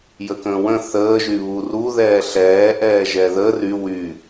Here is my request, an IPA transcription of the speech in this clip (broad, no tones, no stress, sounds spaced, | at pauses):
j ə k ə̃ː w ə̃ θ əː ʒ y β u r u ð ɛː ɬ ɛː ʔ ɛː ʒ ɛ ð ə r y w y